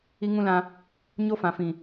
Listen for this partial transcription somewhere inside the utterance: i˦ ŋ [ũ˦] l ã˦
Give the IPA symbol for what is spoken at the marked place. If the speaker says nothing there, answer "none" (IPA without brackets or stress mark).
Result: ũ˦